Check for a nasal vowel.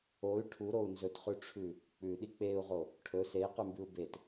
absent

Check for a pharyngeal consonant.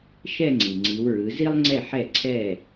present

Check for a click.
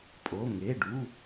absent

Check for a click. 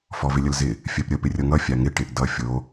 absent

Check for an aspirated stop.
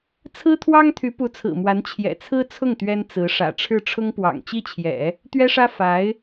present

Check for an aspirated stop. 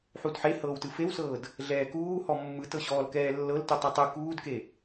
absent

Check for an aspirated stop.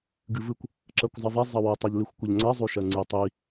absent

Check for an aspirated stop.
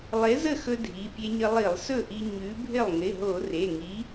absent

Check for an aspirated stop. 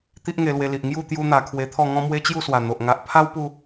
present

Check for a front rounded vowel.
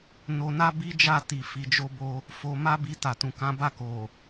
absent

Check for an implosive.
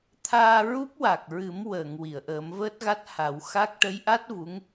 absent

